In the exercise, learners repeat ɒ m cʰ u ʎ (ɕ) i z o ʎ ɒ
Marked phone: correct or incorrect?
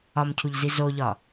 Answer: incorrect